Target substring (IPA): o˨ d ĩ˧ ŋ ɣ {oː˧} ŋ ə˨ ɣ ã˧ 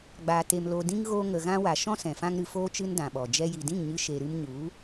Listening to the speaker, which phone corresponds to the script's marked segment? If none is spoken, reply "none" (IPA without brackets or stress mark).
oː˧